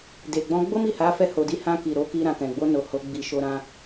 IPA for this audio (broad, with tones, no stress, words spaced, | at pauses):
de˨ɡ͡bɔ̃˧ ɡ͡bo˦mi˦˨ha˨˦ fɛ˧ho˨di˧ hã˧ki˨ ɾo˨˦ki˧ ɾã˨kɛ̃˨ɡ͡bo˧ no˨ ho˨˦ ɡ͡bi˧ʃo˧ɾã˧